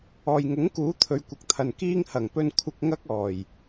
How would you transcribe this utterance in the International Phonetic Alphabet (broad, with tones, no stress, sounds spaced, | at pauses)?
ɔː˨ j ŋ ʊ˨˥ ŋ k uː˨˥ t̪ʰ ɵ˨˧ ɥ kʷ ɐ˨ k̚ t̪ʰ ɐ˨ n k iː˥ ŋ h ɐ˨˩ ŋ p ɵ˧ n kʷʰ ɪ˧ k̚ ŋ ɐ˥ k̚ ɔː˨˩ j